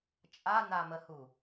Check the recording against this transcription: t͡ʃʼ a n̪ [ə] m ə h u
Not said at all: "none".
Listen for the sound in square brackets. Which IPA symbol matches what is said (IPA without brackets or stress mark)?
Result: a